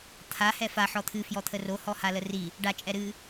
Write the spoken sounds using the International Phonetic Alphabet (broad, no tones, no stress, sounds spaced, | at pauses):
t̪ʰ a h ɛ f a ħ ɔ t̪ʰ ɨ f j ɔ t̪ʰ ə r o h ɔ h a l ə r i | ɖ a t͡ʃʼ ɛ ɾ ɨ